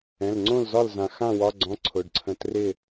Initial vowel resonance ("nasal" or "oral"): nasal